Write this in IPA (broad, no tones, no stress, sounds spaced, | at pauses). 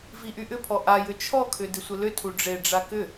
v i ʔ y ʔ ʏ pʰ ɔ ʔ a j ʏ t͡ʃʰ ɔ kʰ ʏ d ɪ sʷ ɘ l ʏ tʰ u ɖ͡ʐ e ɖ͡ʐ a k ʏ